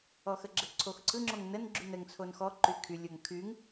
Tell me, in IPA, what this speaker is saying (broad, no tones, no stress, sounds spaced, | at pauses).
ɔ x ə ɡ͡ǁ ə ǀʰ o x ǀʰ ɯ ŋ͡ǁ o ŋ n ə n ɡ͡ǁ y n ə ŋ t͡sʰ o n x ɔ ǃ y kʰ y lʲ o ŋ kʰ y ŋ